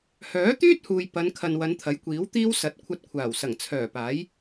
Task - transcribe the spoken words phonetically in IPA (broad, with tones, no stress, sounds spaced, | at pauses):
h œː˨˥ t̪ yː˥ t̚ h uː˨ j p ɐ˨˧ n kʰ ɐ˨ n w ɐ˨˧ n t̪ʰ ɐ˨˥ j kʷ iː˨˥ w t̪ iː˥ w s ɐ˨˥ t̚ kʷʰ ɐ˧ t̚ kʷʰ aː˨˩ w s ɐ˨˩ ŋ t͡sʰ œː˨˩ p aː˨˥ j